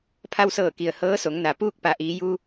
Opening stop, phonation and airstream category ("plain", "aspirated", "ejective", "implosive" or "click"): aspirated